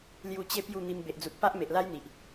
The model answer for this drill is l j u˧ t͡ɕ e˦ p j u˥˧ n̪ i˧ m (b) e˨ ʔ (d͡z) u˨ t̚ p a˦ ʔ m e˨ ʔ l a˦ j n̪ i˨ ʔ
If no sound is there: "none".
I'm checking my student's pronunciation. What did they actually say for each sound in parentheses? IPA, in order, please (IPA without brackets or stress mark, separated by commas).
b, d͡z